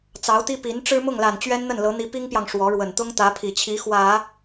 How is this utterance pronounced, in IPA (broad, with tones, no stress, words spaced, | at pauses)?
t͡sɑ˧˥ʊ̯t̪i˥ pi˧˥n ʈ͡ʂɻ̩˥mʊ˥˩ŋla˨˩n t͡ɕɥɛ˥nn̪ə˥˩nlɤ˧˥ n̪i˧˥pi˥ŋpjɑ˨ŋ ʂwɔ˧˥ɻwə˨˩n t̪ʊ˥ŋt̪ä˧˥pʰi˨˩t͡ɕʰi˧˥ xwä˨˩˦